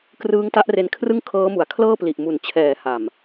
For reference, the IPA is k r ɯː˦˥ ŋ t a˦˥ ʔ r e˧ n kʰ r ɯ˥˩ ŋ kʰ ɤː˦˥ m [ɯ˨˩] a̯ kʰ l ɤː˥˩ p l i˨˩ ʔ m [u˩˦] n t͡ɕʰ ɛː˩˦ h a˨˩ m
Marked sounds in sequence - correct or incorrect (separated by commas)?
incorrect, correct